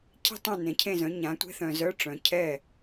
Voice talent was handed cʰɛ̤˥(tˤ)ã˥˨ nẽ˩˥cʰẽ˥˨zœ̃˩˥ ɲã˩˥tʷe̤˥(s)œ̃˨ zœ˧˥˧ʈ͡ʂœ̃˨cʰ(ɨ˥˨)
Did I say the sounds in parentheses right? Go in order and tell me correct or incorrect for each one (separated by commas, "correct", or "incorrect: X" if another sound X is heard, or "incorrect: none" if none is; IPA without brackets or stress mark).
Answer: correct, incorrect: θ, incorrect: ɛ˥˨